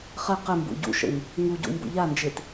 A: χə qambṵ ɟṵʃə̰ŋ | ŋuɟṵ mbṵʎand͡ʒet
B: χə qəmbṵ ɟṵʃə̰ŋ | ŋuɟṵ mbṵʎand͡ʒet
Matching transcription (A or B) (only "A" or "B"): B